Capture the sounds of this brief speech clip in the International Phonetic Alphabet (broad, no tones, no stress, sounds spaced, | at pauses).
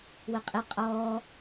w ə qʼ ɪ qʼ ɔː